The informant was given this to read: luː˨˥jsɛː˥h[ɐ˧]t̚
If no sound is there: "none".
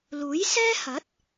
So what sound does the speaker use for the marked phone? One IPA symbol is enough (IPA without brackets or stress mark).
ɐ˨˥